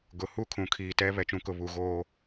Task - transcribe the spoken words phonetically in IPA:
ɡ ʊ˨ h u˦ kʰ ũ˨ kʰ iː˨ t ɛ˦ β ɛ˨ t͡ʃ ũ˨ k ʊ˨ β u˨ ɣ oː˦

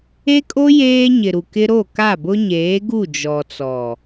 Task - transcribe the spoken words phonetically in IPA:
e˦ kʼ o˦ j eː˦ ɲ ɪ˨ ɾ u˨ k ɪ˦ ɾ o˦˨ k a˦˨ b ʊ˦ ɲ eː˨˦ ɡ u˦˨ d͡ʒ ɔ˨ t͡s ɔ˨

